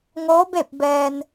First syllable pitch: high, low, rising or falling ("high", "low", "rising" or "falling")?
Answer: rising